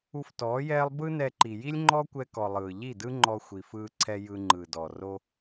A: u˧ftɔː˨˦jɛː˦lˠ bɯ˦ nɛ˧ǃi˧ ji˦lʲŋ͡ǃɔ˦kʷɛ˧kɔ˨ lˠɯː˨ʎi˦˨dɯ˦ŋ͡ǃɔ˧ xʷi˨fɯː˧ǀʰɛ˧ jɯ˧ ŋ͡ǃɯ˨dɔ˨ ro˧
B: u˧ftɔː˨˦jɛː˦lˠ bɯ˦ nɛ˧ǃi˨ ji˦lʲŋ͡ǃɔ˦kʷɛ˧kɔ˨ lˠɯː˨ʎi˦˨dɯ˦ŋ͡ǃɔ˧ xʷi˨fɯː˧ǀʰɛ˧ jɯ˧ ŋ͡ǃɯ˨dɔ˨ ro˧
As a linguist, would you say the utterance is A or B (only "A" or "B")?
B